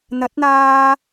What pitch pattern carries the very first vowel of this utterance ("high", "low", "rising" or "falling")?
rising